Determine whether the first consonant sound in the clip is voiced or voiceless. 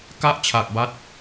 voiceless